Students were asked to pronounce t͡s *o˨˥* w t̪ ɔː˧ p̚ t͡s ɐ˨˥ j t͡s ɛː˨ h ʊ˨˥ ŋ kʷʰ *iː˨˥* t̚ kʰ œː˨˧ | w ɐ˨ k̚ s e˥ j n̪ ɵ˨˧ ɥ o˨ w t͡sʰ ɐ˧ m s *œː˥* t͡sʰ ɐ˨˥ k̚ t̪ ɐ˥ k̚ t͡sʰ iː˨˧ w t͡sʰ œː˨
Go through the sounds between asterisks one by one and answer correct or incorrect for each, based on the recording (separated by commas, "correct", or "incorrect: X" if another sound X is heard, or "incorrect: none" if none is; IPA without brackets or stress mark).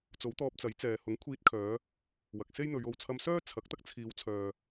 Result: correct, incorrect: iː˧, correct